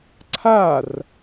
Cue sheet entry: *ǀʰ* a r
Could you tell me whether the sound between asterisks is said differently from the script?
no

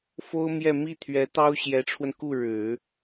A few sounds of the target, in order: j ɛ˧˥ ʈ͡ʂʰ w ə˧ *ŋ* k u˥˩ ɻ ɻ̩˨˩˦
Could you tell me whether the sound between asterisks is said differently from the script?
yes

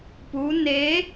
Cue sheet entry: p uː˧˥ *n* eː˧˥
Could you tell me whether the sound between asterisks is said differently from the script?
no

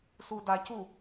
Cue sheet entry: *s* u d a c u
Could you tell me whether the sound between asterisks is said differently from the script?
no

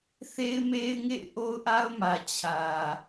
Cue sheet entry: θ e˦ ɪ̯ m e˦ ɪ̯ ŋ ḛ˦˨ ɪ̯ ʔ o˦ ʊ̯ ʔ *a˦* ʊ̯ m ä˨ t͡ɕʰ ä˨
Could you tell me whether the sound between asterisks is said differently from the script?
no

